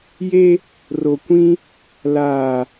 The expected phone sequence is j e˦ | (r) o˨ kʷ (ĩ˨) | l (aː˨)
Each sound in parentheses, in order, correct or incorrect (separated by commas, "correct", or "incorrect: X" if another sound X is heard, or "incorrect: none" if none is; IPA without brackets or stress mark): correct, incorrect: ĩ˦, correct